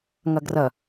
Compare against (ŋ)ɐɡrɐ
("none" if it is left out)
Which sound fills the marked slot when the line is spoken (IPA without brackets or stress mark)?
ŋ